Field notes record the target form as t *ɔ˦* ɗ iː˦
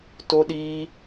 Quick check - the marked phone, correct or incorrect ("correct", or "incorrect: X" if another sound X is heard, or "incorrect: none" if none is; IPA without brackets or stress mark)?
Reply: incorrect: o˦